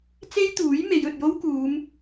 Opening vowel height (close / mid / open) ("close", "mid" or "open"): mid